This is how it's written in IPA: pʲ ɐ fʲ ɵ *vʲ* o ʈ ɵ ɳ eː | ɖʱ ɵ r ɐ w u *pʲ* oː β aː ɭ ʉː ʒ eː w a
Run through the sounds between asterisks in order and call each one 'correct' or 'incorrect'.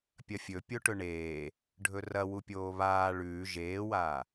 incorrect: pʲ, correct

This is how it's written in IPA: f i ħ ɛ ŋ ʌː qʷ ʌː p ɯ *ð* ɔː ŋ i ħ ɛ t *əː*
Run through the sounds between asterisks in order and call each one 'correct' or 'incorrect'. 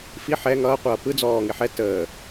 incorrect: d͡z, correct

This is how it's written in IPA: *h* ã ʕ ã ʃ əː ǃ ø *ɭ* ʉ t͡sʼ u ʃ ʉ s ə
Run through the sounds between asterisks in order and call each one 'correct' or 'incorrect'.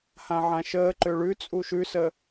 correct, correct

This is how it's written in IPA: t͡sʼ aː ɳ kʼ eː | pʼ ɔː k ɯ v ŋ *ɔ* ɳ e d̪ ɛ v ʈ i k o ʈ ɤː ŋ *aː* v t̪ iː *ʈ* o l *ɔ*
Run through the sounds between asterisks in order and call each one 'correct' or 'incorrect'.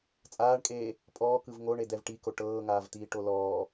incorrect: o, correct, correct, incorrect: ɔː

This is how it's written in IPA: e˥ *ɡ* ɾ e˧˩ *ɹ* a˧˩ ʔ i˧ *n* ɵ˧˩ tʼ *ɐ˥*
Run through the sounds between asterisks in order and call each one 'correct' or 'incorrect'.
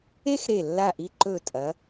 incorrect: x, incorrect: lː, incorrect: ǃ, incorrect: ɐ˩˧

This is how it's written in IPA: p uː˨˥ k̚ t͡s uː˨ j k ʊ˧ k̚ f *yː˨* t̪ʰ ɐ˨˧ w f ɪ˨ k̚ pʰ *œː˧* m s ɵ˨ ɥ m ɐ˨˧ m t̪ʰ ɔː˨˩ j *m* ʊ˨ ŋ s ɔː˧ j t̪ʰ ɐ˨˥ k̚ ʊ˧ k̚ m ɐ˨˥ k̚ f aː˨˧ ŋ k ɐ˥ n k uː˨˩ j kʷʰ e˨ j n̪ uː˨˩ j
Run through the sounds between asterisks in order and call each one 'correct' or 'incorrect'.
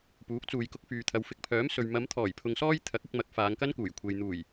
correct, incorrect: œː˨˥, incorrect: pʰ

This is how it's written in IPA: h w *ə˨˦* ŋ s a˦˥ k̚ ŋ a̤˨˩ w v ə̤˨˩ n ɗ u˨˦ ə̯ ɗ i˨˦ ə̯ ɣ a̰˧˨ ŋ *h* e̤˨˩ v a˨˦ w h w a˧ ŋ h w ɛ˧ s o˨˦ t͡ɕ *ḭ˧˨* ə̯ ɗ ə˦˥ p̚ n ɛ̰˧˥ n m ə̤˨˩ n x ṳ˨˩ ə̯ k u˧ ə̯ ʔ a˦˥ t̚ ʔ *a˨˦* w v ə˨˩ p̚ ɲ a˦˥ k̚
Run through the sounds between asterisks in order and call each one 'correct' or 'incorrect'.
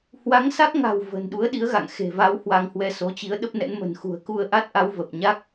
incorrect: a˨˦, incorrect: x, incorrect: i˨˦, correct

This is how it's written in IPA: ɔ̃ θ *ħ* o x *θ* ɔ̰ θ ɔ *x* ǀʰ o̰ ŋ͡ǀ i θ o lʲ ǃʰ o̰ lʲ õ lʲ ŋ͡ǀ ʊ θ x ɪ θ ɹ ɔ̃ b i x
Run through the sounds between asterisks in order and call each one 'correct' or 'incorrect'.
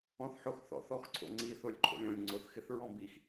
correct, correct, correct

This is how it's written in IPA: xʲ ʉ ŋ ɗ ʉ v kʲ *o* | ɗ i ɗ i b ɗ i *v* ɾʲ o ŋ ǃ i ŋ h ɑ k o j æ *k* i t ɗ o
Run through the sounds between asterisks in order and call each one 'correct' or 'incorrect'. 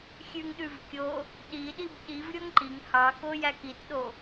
correct, correct, correct

